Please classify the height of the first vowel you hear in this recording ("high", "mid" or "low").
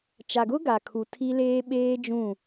low